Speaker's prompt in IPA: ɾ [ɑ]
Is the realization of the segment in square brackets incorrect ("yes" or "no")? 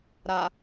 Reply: yes